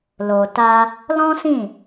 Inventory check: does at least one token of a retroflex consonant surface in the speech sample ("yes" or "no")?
no